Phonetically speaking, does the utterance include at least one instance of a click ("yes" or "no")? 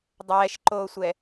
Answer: yes